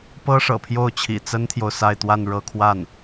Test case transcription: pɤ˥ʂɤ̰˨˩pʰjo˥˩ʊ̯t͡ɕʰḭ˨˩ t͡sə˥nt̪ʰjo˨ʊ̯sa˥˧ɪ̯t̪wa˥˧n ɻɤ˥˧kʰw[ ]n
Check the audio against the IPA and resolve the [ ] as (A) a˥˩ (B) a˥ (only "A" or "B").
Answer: A